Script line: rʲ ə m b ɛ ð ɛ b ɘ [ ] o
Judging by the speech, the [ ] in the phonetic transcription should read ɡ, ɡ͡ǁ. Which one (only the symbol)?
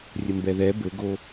ɡ